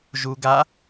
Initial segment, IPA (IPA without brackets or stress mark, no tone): ʒ